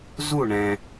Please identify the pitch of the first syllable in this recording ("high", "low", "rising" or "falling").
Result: falling